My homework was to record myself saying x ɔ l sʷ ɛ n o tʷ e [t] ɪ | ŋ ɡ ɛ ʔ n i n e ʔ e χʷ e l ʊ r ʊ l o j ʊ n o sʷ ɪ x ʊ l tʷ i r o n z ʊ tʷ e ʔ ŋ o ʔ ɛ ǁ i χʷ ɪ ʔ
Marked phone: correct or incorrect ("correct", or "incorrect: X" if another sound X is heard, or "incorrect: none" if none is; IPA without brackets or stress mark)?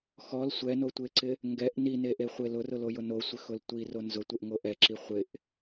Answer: incorrect: ǀ